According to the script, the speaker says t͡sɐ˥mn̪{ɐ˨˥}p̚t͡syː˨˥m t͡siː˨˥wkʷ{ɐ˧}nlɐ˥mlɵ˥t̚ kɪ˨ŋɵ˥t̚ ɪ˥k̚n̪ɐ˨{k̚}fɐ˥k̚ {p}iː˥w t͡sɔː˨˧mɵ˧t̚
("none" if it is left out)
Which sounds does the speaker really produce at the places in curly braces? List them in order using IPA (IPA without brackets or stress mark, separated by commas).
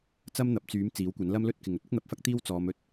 ɐ˨˥, ɐ˨˥, p̚, t̪